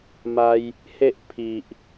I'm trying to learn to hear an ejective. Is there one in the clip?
no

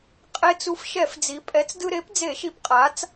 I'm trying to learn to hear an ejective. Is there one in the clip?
yes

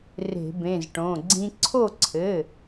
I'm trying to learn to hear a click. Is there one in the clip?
yes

